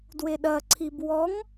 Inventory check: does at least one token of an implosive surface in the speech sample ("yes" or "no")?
yes